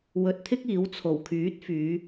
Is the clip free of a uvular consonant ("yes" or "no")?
yes